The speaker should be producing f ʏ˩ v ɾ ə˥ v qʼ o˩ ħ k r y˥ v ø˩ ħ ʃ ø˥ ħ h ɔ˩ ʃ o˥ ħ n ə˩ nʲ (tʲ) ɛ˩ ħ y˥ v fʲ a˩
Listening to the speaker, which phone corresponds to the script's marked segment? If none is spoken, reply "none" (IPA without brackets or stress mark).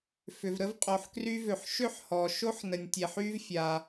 tʲ